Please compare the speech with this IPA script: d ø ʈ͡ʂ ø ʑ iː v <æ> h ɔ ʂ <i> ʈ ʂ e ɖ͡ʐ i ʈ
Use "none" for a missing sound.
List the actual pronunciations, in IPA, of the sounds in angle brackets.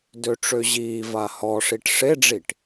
a, i

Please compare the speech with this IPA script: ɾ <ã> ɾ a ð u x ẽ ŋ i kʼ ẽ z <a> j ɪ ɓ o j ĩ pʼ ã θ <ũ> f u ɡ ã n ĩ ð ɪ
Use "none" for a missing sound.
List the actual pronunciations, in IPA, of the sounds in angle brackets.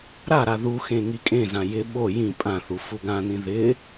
a, ã, u

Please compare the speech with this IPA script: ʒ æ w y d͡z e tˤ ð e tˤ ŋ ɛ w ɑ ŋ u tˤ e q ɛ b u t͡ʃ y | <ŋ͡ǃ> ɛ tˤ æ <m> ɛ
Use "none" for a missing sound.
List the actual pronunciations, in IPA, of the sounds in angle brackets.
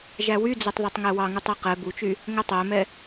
ŋ, m

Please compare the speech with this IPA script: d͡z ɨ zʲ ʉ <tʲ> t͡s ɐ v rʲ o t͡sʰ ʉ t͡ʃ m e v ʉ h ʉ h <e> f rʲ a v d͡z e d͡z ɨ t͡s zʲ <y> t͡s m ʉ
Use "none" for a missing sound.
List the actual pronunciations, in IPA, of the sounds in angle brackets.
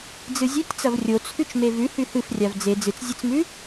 tʲ, ɨ, e

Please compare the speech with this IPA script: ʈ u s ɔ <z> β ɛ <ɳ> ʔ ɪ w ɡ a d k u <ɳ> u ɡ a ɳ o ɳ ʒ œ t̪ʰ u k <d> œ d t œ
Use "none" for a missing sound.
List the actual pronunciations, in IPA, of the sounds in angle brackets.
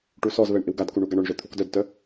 z, ɳ, ɳ, d

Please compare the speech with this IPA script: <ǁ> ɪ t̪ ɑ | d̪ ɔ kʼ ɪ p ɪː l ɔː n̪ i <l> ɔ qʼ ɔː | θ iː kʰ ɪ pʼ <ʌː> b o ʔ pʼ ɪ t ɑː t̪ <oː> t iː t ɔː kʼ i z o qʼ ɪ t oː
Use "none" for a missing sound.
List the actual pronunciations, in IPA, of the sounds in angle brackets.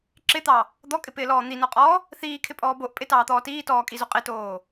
ǁ, n, ɔː, ɔː

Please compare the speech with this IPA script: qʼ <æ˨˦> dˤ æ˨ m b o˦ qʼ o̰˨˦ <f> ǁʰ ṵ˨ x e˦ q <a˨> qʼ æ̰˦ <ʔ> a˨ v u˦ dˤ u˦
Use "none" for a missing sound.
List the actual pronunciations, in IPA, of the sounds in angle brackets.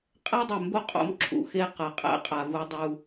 æ˦, m, a˨, qʼ

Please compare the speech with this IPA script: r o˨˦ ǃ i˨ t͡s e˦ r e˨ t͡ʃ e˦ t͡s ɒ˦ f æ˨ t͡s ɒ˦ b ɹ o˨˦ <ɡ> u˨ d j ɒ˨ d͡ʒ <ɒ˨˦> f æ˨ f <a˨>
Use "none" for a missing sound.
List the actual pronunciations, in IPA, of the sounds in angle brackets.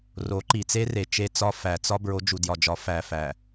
d͡ʒ, ɒ˨˦, æ˨

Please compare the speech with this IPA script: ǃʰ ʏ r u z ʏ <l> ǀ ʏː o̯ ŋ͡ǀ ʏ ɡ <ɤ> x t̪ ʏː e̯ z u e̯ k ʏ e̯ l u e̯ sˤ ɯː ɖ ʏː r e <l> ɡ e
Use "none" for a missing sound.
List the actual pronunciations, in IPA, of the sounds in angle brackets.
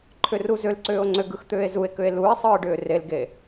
l, ɯ, l

